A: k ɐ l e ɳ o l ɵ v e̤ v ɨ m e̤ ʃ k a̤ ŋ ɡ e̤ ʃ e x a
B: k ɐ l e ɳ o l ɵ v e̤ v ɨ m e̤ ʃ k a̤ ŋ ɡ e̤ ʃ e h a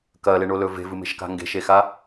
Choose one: A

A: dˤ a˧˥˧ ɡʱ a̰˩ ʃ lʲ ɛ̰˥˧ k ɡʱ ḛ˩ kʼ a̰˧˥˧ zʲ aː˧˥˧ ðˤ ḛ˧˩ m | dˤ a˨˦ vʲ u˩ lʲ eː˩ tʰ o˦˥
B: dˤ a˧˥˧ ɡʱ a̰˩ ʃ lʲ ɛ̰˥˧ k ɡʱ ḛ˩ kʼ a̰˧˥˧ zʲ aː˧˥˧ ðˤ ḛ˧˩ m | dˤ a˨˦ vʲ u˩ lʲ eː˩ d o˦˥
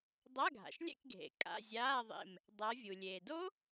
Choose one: B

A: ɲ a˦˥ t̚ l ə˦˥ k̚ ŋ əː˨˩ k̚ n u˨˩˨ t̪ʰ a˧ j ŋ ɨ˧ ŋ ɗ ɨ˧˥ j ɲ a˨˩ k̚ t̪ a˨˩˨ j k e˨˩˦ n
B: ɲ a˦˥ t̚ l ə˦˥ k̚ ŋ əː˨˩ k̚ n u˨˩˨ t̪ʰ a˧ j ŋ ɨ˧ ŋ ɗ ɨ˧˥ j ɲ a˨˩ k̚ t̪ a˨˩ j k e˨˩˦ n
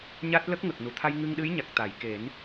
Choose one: A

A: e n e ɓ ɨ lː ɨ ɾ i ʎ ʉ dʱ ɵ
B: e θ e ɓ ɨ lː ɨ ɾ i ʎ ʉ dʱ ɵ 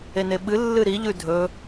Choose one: A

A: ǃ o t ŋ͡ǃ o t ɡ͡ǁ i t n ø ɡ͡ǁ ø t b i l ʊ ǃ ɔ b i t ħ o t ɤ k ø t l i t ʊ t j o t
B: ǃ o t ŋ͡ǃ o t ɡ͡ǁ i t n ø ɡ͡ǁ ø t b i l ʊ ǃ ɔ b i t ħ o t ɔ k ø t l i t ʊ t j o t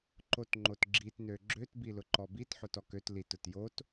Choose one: B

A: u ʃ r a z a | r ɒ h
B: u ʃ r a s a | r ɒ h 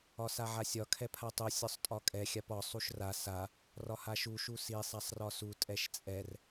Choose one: B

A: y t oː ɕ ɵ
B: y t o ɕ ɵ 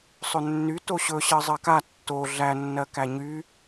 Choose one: B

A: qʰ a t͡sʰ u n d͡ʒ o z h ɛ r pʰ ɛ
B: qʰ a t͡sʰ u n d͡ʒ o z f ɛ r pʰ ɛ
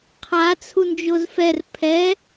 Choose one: B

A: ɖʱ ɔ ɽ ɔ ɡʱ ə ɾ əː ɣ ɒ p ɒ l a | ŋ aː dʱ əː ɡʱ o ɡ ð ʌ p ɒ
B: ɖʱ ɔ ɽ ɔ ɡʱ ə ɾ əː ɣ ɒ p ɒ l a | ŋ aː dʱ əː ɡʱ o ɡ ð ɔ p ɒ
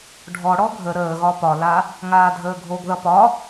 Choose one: A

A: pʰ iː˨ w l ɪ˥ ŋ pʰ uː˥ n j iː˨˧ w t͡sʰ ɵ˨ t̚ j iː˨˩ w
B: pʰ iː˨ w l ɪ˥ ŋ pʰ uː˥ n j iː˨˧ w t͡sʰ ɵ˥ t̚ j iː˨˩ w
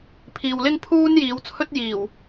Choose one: B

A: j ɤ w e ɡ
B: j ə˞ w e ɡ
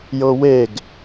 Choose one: A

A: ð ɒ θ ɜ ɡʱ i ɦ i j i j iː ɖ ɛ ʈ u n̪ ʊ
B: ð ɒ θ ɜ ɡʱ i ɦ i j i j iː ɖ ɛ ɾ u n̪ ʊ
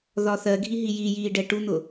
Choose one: A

